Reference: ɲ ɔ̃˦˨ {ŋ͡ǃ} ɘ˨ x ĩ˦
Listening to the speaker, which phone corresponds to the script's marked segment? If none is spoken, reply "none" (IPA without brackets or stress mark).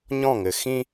ŋ